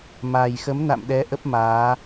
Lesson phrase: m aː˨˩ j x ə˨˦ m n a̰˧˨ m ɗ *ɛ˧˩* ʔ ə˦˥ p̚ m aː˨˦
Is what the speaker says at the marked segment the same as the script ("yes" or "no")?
no